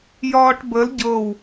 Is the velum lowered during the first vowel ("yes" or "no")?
no